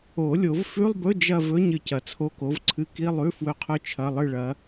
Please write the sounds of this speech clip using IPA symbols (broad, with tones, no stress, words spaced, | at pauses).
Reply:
o˨˩˦lʲo˨˩˦vfʉ˧˥˧lˠbɵ˧˥˧ d͡ʒɐ˥˧vɵ˧˥˧ɲ ɨ˨cɐ˨ t͡sʰo˧˥˧ko˨˥vǀʰɨ˧˥˧ ki˧˥˧lˠʉ˧˥˧ fwɵ˧˥˧qʰɵ˥˧ t͡ʃʰɐ˧˥˧lˠɨ˥˧ɭɐ˨˥